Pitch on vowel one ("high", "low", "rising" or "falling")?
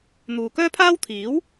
low